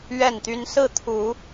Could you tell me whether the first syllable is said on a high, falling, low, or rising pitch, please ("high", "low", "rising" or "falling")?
falling